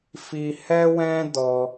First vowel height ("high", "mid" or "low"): high